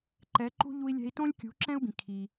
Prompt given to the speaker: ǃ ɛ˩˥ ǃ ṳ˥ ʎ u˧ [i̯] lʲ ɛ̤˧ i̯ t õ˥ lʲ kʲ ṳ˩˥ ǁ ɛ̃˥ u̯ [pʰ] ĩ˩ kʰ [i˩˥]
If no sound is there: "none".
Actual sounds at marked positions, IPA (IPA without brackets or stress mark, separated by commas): i̯, b, i˩